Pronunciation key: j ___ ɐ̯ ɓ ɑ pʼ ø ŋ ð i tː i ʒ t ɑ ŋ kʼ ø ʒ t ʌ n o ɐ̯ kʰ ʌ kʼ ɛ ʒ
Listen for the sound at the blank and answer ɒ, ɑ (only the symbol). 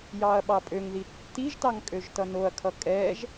ɑ